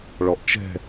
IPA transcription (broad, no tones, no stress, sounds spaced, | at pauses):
ɭ ɔ ʔ t͡ʃ ɛ̤